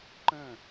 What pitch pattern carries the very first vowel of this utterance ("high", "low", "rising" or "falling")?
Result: falling